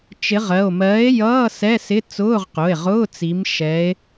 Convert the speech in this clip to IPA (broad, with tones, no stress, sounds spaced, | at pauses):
t͡ʃ ɪ˨˥ ʁ ɜ˩˧˩ o̯ m ɜː˨˥ e̯ j ʌː˧˥˧ s ɛ˧˥˧ s ɪ˧˥˧ t͡s ʊː˧˥˧ ʁ q ʊ˩˧˩ e̯ ʁ ʊː˧˥˧ t͡s i˨˥ m ʃ ɛ˨˥ e̯